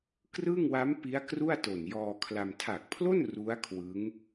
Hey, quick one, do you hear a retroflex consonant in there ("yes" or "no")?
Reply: no